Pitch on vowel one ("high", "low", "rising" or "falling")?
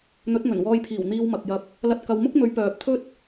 rising